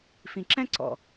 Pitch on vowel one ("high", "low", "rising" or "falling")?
low